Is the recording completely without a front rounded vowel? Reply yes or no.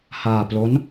yes